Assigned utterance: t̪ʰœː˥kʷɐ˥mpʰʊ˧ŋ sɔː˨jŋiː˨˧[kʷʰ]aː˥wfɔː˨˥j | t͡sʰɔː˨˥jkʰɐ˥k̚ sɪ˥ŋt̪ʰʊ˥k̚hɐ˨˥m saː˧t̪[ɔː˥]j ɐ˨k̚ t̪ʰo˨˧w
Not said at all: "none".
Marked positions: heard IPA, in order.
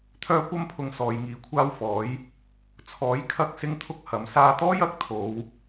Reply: kʷʰ, ɔː˥

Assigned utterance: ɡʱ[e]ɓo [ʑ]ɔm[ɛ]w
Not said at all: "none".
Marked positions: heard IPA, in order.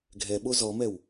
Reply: ɛ, z, ɛ

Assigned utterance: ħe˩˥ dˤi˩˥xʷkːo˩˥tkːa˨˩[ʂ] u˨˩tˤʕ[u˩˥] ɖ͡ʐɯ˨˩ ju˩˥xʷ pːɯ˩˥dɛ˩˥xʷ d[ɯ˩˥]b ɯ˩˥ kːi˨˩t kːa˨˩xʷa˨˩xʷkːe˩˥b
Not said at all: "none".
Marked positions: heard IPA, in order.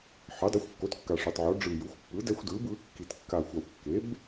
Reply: ʂ, o˩˥, ɯ˩˥

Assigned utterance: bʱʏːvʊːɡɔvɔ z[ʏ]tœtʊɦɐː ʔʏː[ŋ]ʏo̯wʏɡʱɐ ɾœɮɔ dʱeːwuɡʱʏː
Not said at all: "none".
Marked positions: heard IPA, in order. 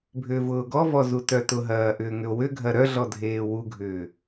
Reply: u, ŋ

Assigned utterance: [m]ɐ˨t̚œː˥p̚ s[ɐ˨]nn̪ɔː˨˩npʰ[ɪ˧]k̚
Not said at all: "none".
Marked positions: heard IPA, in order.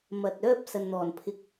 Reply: m, ɐ˨, ɪ˧

